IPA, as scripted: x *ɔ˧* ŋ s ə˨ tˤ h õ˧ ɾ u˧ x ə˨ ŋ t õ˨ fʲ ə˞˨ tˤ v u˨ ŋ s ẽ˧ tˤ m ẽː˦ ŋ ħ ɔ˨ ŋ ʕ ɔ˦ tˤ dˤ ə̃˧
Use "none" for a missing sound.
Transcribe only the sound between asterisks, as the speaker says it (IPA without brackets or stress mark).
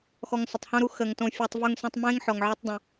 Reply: ɔ˧